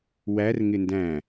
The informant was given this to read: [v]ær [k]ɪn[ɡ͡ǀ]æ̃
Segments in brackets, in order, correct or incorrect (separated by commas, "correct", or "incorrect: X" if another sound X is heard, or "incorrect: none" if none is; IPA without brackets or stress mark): incorrect: w, incorrect: ŋ, incorrect: d